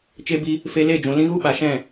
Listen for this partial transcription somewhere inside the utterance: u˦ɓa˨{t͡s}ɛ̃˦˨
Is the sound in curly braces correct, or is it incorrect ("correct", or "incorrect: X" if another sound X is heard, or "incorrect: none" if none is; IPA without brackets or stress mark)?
incorrect: ʃ